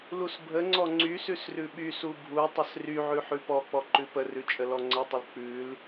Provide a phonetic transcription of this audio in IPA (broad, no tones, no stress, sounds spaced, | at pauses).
l u s bʱ ə ŋ͡ǀ ɔ ŋ͡ǀ y s ʉ s r ʉ ɓ y s u bʱ u tˤ ə s r y ʕ ʉ ħ ʉ p ɔ k͡p ɔ ǃ ʉ p ə r ʉ t͡ʃʼ ə l ɔ ŋ͡ǀ ə tˤ ə l k͡p ʉ l